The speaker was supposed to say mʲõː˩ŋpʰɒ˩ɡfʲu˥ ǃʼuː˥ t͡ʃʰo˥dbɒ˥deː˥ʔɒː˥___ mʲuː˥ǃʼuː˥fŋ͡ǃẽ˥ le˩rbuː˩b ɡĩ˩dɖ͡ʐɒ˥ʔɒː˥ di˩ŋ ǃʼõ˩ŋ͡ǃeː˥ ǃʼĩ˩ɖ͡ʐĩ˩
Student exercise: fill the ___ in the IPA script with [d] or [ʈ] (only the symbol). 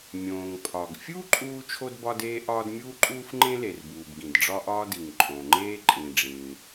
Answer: d